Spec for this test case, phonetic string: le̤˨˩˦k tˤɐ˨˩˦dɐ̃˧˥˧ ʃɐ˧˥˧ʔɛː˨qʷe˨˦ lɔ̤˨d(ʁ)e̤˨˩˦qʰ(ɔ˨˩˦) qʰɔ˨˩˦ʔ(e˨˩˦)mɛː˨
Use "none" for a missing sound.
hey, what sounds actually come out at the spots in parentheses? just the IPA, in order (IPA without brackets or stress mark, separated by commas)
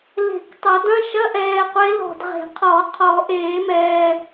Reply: ʁ, ɔ˨˩˦, eː˨˩˦